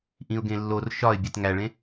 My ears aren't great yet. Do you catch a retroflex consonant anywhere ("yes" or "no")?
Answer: yes